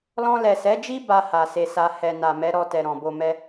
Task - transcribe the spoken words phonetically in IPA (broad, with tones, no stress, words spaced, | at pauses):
lɔ̃˧lɛ˨sɛ˨˦d͡ʒi˦ ba˧ ha˨se˧sa˧ hɛ˨ na˨mɛ˨˦ɾɔ˧tɛ˨ ɾɔ̃˨bo˧mɛ˦